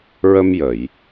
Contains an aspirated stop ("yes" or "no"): no